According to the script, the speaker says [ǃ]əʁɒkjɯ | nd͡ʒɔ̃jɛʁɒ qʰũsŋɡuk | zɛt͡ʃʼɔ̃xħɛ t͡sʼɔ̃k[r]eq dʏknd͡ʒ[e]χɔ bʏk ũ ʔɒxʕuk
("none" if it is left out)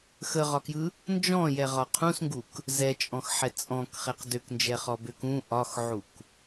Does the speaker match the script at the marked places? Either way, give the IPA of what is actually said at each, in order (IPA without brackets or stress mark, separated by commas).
x, χ, ɛ